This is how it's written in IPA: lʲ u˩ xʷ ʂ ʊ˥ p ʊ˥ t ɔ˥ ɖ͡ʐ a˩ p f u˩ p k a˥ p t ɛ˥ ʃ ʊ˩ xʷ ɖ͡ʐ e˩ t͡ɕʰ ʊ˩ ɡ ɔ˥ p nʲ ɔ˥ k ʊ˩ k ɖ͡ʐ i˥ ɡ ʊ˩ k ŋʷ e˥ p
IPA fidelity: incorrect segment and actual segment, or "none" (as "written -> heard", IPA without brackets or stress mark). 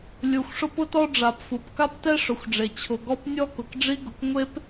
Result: ʃ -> ʂ